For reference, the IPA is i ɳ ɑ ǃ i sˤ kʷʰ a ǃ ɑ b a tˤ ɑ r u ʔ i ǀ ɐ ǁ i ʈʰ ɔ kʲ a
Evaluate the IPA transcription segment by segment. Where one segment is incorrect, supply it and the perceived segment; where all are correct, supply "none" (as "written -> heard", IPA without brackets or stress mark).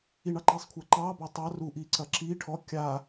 none